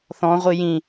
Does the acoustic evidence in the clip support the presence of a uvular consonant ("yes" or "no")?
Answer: yes